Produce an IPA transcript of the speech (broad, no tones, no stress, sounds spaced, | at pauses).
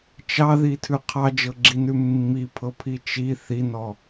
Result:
t͡ʃ ɑ ð i tʰ ʉ qʰ ɑ d͡ʒ ɤ ɡ͡ǁ i n ʉ mː i pʰ ɤ pʰ i t͡ʃ i θ i n ɔ